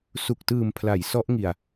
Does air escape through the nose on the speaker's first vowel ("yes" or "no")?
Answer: no